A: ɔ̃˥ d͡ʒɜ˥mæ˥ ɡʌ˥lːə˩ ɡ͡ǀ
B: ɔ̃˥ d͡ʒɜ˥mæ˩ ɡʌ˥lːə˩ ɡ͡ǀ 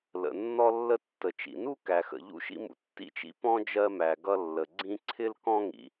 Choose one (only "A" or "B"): B